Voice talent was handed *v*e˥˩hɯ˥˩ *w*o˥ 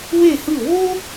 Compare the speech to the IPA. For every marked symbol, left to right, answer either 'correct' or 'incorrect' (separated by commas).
incorrect, correct